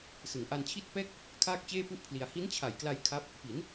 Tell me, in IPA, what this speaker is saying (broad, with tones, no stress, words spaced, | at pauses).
sɯ˩˦ŋʔa˧nt͡ɕʰi˥˩t̚ pɛː˥˩k̚ | kʰaː˥˩k̚t͡ɕeː˥˩pu˥˩ʔpʰli˧a̯ hi˦˥nt͡ɕʰa˨˩jkla˧j kʰa˦˥p̚ | pi˩˦n